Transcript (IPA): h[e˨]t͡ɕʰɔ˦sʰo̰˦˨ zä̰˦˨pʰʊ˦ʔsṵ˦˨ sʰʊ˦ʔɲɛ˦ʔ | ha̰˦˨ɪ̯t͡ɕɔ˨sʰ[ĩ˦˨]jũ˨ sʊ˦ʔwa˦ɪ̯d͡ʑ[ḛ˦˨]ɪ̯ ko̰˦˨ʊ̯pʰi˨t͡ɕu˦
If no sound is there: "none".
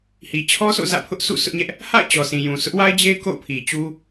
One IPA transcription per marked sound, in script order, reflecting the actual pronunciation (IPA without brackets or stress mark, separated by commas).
i˨, ĩ˨, e˦